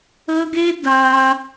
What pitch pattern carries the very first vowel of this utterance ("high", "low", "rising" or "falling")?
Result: high